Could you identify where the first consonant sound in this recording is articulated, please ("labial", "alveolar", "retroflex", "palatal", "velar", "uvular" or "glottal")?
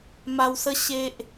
labial